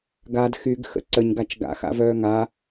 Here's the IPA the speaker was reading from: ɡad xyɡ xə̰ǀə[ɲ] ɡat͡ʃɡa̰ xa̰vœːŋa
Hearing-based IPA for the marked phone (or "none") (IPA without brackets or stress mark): ɲ